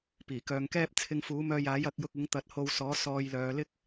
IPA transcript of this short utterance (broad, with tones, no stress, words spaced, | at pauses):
piː˨˩kœː˨˧ŋkɛː˥p̚ t͡sʰɪ˧ŋfuː˨˥mœː˧ jaː˨˥jɐ˨˥k̚jʊ˧k̚ ɪ˨˥ŋt̪ɐ˨˥t̚ho˧wsɔː˨˥ sɔː˧jlœː˨˧lɪ˥k̚